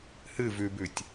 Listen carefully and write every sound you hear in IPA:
h ɨ v ʉ b ʉ tʲ

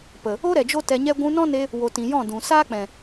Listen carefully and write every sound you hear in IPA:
p ə˨ | o˦ ɾ ɛ˨ d͡ʒ o˦ t ɛ˧ ɲ ɛ˦ ɡʷ ũ˧ n ɔ̃˦ n e˧ | w o˨ t ĩ˨ j ɔ̃˦˨ d ũ˨ s aː˦ k͡p ɛ̃˨

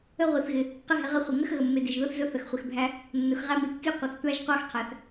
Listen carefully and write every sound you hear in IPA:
ə˧ ʁʷ i˩ θ ɣ ɪ˩ | q ɪ˧ ɦ ɪ˩ ʁ ə˧ χʷ ɪ˩ ŋ ə˧ x ɣ ə˩ mː ɪ˩ d ɪ˩ ʒ ð ʊ˧ θ z ʊ˧ θ ə˩ x χʷ ɪ˩ x bʱ æ˧ | nː ʊ˩ x ʁ æ˧ m i˩ kː i˧ qʷ ə˩ θ tʷ æ˧ ʒ qʷ ɑ˧ x qʰ æ˩ θ

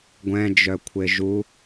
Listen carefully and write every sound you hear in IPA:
ɡʷ ɛ̃ d͡ʒ œ kʷʰ e ʒ u

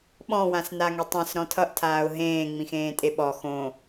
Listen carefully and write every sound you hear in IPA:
ɓ ɔ̃ w ã s n a ŋ e tˤ ẽ s ɾ ɔ̃ tʰ ʌ ʔ tʰ aː ʊ̯ ɦ ẽː ŋ͡m ĩ x ẽː tʼ e ɓ ɔ x õ

